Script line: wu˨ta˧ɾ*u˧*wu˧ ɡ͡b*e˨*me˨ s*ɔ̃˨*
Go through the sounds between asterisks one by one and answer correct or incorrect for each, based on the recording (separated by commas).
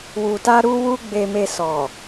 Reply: correct, correct, incorrect